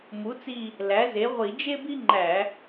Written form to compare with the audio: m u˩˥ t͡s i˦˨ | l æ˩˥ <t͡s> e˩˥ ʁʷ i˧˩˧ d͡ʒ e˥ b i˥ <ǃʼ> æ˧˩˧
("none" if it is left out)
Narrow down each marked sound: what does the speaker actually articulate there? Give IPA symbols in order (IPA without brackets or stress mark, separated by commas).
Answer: z, ŋ͡ǃ